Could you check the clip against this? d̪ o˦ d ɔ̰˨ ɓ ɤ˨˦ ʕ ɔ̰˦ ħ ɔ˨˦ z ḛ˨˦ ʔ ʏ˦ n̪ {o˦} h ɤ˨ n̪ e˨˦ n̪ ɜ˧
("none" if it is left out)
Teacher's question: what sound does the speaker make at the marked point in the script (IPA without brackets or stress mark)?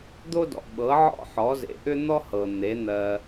ɔ˦